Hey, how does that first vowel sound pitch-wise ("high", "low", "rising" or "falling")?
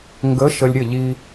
rising